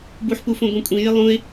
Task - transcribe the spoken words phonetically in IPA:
b u ħ p u f õ ɡʷ ĩ kʷʼ ĩ j ɪ lˠ ũ ɪ̯

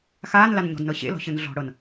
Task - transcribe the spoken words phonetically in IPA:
x aː n l a n ɲ ɔ̤ d n ɤ ɕ ḛ l ɔ̤ ɕ ɯ n ɮ ɔ̤ ɽ ɤ n

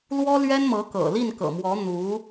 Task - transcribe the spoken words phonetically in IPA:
l w ɔ˥ l ɥ ɛ˥ n m ɤ˧˥ k ɤ̰˨˩ l i˥˩ n k ɤ̰˨˩ m w ɔ˧˥ n̪ u˧˥

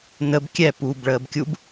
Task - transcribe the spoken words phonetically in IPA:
n ə b kʲ ɛ p uː b ɭ əː b kʲ u b

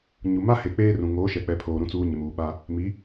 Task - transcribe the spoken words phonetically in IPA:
ɲ u˨ m a˦ h e˨ k͡p eː˦ r ũ˨ ŋ oː˨˦ ʃ ɛ˨ k͡p ɛ˨ pʰ oː˨ ɾ ũ˨ t͡s uː˨ ɲ ɪ˨ m uː˨ ɓ a˦ | m i˨˦

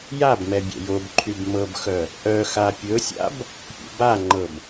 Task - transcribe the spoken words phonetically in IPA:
j a b m ɛ bʲ ɛ̰ j o b ǃʰ y b m ɤ b x œ | ʔ œ x a pʲ ɵ sʲ a̰ b | pʲ ṵ b a ŋ͡ǃ ɤ b

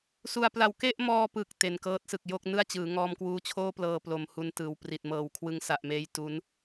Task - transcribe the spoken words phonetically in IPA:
s u˧ a̯ p l a˧ w k e˥˩ ʔ m ɔː˧ p ɯ˨˩ k̚ t e˨˩ n k ɤː˦˥ t̚ s ɯ˨˩ k̚ j o˥˩ k̚ n ɯ˥˩ a̯ t͡ɕ ɯː˩˦ ŋ ɔː˧ m k w uː˦˥ t͡ɕʰ oː˥˩ p l ɤː˧ p l o˩˦ m h u˧ n t ɯː˨˩ w p r i˨˩ t̚ m ɤː˩˦ w kʰ w ɯ˧ ŋ s a˨˩ ʔ m eː˦˥ j t u˦˥ n

